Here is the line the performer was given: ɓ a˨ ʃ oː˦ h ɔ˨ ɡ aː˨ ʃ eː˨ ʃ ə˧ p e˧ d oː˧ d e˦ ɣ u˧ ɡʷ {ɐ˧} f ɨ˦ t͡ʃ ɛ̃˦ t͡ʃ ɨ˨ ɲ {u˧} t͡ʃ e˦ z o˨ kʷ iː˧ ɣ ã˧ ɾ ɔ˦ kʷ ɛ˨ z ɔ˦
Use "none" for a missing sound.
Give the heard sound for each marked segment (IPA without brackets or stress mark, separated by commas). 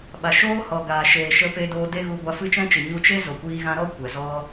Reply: a˧, u˧